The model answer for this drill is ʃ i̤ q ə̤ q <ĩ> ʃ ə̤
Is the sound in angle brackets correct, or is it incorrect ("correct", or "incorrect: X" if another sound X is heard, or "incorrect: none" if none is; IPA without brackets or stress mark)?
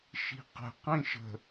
correct